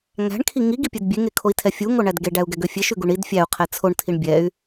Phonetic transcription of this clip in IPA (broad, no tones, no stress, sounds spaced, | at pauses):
ŋ æ̤ ɳ kʰ i ŋ i ɡ i pʲ e d bʲ e ŋ e kʰ o i̯ tʰ ɛ fʲ u ŋ o ɳ æ d ɡ e ɖ æ u̯ ɡ ɛ ɡ ø fʲ e ʃ ʉ ɡ u ɳ i d fʲ æ u̯ qʰ ɛ t͡sʰ o ɳ tʰ i ɳ bʲ ɛ y̯